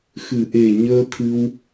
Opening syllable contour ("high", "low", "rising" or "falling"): low